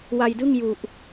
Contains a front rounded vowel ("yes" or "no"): no